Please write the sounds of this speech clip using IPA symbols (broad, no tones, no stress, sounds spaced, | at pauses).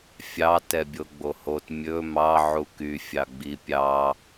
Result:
fʲ ɑ t ɛ bʲ o ɡ͡b o h o t mʲ ɵ m ɑ ʕ u k y fʲ ɑ ɡ͡b i pʲ ɑ